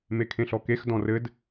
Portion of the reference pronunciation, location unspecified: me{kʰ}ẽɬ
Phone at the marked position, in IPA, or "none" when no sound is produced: kʰ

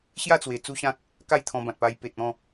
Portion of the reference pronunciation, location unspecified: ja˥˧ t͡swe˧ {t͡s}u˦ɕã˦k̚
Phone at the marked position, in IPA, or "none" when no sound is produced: t͡s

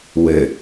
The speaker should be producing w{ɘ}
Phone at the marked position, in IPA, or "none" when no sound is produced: ɘ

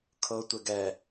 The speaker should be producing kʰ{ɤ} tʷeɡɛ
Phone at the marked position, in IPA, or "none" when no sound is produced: ɤ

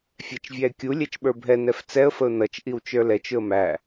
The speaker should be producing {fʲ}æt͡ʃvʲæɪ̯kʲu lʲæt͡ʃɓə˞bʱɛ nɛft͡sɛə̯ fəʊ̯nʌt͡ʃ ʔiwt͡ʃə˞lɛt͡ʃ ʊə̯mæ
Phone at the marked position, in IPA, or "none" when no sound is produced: fʲ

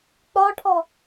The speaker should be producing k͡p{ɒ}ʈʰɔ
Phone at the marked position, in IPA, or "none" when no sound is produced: ɒ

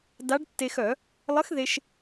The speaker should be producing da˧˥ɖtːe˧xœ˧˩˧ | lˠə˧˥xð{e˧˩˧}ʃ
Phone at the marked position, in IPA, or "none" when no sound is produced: e˧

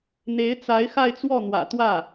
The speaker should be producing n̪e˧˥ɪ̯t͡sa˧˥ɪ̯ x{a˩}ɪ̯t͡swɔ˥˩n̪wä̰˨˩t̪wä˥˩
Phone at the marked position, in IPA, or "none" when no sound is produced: a˥˧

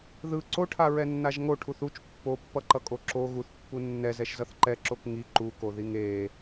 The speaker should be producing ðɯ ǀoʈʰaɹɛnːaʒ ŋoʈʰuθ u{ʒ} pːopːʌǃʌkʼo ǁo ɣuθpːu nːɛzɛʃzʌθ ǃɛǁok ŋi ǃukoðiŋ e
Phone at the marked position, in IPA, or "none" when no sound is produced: t͡ʃ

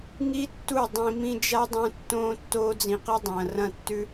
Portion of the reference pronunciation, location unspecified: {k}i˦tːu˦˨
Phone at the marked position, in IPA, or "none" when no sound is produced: ŋ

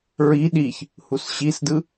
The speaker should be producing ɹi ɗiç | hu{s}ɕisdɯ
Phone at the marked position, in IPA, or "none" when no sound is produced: s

